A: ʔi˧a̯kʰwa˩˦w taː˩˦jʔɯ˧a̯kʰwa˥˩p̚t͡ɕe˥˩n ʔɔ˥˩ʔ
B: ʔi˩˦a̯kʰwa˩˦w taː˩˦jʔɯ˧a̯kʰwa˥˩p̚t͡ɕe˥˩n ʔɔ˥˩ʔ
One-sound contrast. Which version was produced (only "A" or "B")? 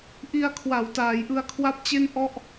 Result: A